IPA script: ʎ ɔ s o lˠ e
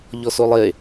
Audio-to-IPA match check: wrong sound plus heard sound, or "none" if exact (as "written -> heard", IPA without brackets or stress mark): none